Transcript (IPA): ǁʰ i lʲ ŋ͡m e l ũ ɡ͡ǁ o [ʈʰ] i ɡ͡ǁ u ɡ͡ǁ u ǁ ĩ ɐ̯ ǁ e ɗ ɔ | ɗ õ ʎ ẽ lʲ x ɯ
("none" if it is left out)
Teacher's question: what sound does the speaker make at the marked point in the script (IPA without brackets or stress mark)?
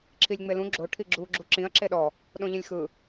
ʈʰ